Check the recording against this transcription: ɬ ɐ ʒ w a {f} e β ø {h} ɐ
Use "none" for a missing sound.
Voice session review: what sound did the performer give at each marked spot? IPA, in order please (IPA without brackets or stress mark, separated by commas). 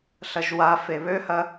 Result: f, h